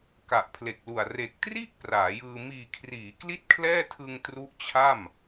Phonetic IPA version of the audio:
ka˨˩ʔpʰle˨˩k̚lu˨˩a̯ re˨˩k̚tri˥˩ʔ praː˩˦jɯː˧ miː˨˩kʰriː˩˦ kli˥˩t̚kʰlɛː˥˩tʰɯ˧ŋ tru˦˥ʔ t͡ɕʰa˥˩m

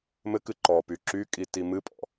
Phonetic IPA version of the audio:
mɘkɨ ǃɔpy ǁykʼi timɨpʼɔ̰

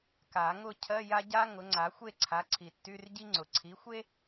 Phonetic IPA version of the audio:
ka˨˩˦ŋʊ˥˧ cʰɜ˧˥˧ja˥ɟa˥ ŋʊ˩˥ŋ͡ǀa˩˥ xʷe˥˧ǀʰa˩˥ǀʰi˩ tːy˧˥˧rɟi˥ŋ͡ǀʊ˩ ǀʰi˩˥xʷe˥

